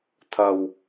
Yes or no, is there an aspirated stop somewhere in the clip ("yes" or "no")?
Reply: yes